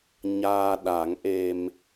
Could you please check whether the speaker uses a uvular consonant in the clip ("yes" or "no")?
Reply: no